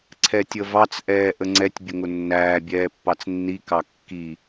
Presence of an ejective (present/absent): absent